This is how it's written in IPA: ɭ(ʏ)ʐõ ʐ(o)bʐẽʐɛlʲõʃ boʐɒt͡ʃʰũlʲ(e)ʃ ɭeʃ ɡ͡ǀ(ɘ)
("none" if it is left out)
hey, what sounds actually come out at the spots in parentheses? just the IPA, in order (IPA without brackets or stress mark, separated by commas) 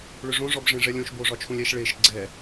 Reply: ʏ, ɔ, ɛ, ɛ